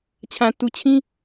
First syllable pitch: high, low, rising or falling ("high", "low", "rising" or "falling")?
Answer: low